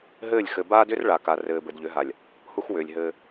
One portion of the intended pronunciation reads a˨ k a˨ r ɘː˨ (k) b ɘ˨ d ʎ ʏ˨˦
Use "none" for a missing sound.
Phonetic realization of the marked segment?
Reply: none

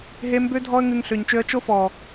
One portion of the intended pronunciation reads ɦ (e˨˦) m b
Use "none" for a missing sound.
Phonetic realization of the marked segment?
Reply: e˧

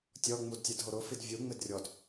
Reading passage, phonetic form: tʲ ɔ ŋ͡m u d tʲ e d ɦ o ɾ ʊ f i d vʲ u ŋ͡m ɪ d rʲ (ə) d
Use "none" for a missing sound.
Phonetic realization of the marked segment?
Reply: ɔ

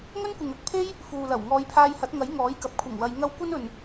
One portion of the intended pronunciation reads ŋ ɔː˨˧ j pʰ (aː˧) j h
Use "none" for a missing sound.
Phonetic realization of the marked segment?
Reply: aː˧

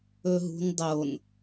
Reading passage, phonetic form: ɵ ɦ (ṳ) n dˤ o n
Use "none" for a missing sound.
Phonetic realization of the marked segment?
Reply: ṳ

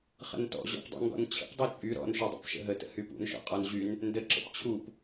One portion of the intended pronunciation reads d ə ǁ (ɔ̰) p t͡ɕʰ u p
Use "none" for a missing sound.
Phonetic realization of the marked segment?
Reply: ə̰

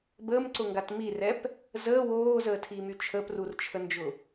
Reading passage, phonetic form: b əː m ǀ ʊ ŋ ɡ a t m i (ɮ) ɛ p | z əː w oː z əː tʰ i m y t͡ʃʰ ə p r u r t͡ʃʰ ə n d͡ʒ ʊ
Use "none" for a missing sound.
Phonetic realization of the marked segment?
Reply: r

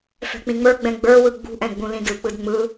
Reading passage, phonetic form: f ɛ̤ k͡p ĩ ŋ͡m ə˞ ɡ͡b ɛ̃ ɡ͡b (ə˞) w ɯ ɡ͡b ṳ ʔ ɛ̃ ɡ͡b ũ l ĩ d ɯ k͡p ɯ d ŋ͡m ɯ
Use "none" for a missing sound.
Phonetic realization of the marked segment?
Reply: ə˞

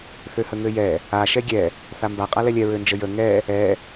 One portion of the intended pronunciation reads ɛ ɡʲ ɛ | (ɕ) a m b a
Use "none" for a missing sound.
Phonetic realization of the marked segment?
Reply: θ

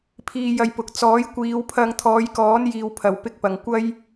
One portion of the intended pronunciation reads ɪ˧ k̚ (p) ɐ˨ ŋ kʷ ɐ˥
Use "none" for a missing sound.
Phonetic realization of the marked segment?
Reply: p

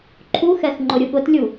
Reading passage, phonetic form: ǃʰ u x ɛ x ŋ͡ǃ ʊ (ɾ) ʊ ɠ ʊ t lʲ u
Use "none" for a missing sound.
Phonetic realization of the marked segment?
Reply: ɾʲ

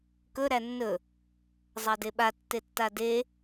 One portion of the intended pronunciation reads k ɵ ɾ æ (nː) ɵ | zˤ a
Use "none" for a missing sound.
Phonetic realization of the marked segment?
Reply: nː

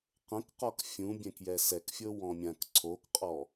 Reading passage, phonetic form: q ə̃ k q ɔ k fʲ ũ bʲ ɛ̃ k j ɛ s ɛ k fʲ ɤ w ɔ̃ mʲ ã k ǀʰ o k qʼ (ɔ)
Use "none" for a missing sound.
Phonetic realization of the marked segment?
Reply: ɔ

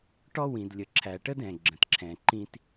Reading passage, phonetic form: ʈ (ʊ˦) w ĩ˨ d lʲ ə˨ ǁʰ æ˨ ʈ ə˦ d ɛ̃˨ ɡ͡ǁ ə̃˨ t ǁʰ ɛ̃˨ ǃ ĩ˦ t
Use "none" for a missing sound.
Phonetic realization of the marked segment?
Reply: ɔ˦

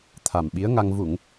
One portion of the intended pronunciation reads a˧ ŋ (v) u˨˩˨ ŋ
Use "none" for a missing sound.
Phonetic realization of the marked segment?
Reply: v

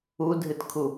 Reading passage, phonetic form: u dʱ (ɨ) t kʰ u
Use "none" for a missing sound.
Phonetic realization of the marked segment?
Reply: ɨ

